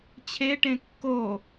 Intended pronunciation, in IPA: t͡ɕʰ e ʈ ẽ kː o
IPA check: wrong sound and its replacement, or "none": none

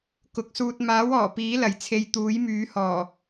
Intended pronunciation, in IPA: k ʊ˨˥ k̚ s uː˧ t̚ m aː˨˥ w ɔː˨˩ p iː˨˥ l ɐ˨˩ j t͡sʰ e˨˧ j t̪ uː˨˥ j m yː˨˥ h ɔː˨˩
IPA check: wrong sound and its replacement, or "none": none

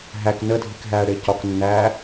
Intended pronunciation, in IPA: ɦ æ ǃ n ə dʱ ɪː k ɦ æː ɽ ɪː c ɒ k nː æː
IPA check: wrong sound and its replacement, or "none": ǃ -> k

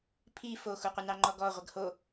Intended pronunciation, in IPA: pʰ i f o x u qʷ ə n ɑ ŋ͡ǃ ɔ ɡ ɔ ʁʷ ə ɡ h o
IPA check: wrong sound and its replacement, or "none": none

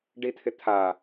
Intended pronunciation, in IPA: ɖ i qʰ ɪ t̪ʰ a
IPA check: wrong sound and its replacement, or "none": qʰ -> t̪ʰ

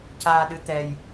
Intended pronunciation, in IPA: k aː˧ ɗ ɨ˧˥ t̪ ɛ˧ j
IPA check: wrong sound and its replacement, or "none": k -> c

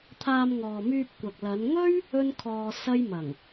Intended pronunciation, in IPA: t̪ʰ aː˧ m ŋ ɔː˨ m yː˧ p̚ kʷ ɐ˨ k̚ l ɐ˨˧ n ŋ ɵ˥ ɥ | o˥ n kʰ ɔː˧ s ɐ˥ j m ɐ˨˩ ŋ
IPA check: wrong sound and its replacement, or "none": o˥ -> ɵ˥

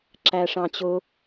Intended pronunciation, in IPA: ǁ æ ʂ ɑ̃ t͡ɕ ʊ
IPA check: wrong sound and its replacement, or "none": none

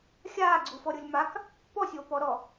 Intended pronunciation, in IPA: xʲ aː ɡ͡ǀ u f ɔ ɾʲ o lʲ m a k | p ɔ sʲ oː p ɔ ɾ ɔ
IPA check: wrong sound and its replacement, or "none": none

